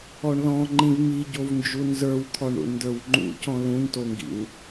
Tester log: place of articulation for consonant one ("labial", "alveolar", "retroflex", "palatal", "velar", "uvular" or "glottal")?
retroflex